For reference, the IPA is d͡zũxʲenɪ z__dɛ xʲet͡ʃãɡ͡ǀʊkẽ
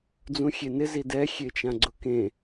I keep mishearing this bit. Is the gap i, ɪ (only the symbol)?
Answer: i